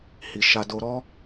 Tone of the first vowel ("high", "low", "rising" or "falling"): low